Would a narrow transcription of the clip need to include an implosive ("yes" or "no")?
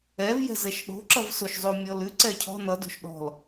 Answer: yes